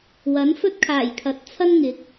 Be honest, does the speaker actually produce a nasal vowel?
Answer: no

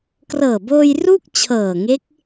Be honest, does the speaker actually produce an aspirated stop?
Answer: yes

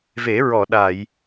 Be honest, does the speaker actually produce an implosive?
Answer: yes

